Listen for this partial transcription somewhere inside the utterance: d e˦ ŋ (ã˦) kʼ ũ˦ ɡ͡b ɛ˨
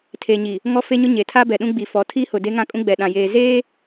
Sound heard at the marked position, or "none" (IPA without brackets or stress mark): ã˦